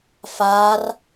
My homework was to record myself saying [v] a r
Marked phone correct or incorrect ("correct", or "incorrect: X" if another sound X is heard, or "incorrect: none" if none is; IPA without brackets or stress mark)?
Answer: incorrect: f